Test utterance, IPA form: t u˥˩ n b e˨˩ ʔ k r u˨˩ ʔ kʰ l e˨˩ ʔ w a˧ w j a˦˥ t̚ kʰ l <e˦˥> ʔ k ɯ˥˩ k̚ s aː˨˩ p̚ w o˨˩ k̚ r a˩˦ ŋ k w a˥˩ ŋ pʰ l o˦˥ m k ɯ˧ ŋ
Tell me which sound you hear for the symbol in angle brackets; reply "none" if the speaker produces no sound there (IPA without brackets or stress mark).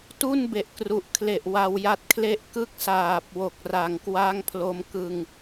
e˥˩